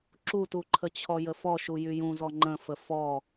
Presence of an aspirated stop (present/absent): present